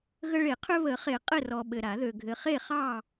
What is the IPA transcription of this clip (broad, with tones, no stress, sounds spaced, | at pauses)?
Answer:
ɣ ə˦ ɭ e˨˩˦ qʰ ø˦ β ə˨˩˦ χ e˨˩˦ qʼ ɘ˥˨ r ɔ˨ ɓ ɘ˨ ɾ a˨˩˦ ð ø˨ ɡʱ ɘ˨ χ e˥˨ χ ɑ˥˨